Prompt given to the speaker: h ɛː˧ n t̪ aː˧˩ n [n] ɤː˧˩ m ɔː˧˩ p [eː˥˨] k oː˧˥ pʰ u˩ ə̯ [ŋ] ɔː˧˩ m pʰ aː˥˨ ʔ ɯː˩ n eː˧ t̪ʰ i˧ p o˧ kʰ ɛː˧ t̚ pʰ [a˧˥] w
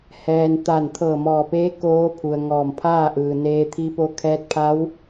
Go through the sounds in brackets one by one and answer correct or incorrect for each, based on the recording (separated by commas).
incorrect, incorrect, correct, correct